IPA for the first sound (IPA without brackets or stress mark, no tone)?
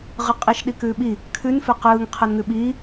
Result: ʁ